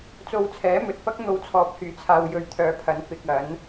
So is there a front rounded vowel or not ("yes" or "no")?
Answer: yes